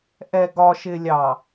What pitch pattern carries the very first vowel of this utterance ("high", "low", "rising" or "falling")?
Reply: low